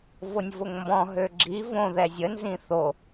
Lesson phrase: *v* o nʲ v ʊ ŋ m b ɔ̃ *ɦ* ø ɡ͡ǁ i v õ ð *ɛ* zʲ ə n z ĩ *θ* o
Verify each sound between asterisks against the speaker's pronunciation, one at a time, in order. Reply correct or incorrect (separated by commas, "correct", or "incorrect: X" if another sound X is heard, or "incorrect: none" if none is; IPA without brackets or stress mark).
correct, correct, correct, correct